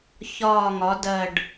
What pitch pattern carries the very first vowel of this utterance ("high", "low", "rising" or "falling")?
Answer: low